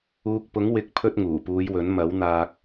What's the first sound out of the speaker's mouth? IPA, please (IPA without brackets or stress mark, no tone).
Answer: uː